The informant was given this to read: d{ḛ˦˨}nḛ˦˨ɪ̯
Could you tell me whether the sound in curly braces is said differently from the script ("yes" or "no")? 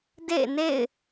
no